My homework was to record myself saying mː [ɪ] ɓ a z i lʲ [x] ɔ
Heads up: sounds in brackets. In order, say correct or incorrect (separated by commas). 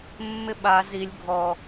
correct, incorrect